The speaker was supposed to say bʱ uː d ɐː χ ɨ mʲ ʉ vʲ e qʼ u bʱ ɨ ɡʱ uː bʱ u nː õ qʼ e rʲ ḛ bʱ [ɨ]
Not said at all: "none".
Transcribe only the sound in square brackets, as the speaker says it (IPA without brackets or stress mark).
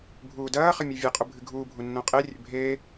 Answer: e